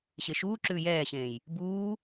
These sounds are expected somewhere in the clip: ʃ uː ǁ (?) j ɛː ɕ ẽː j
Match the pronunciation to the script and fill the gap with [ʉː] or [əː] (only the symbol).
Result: ʉː